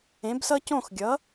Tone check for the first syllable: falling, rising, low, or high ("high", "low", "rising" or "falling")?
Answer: rising